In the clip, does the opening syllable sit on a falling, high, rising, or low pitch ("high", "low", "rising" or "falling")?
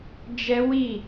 high